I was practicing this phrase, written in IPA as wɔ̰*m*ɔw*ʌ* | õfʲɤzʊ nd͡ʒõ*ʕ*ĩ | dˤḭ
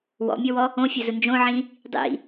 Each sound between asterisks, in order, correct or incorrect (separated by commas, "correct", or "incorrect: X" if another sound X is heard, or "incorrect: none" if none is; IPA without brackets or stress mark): incorrect: mʲ, incorrect: ɔ, correct